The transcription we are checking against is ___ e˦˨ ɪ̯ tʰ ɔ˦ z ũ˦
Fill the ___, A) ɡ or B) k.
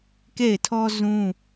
B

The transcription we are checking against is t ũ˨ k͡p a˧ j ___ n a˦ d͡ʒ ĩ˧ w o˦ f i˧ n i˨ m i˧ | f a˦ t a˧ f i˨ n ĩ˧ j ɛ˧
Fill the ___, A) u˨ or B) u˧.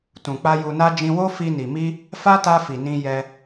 B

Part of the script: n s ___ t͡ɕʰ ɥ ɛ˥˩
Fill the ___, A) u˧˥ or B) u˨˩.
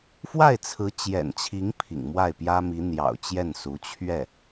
A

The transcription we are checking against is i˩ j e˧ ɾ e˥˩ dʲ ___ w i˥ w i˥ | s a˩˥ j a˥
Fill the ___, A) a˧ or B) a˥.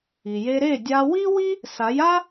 A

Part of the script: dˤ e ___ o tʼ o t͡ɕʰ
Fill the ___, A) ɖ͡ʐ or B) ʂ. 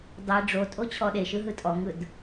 A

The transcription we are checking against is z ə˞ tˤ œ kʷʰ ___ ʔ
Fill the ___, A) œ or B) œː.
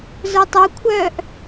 B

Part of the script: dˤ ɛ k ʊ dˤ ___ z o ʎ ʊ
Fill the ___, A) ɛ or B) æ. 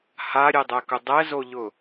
A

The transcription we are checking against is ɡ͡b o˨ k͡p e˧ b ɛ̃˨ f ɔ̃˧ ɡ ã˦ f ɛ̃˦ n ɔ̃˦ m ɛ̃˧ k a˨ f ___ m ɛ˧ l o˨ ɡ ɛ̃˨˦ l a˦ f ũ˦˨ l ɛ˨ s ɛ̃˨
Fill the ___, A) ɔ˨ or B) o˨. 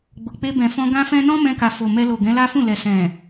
B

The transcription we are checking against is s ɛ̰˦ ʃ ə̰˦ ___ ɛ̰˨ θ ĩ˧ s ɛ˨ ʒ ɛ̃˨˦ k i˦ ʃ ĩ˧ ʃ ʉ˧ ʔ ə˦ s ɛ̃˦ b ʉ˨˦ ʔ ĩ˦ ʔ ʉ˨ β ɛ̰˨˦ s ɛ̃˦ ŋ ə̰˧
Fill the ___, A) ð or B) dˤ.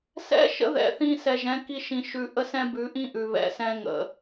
A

